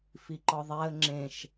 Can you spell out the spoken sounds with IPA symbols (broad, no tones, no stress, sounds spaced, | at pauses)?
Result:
f i ǃ ɒ ðˤ æ ə̯ ŋ͡ǁ ẽ ʃ